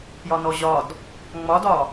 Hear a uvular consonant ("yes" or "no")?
no